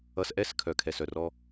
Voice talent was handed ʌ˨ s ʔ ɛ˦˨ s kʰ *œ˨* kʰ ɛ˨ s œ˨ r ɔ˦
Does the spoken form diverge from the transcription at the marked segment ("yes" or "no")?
no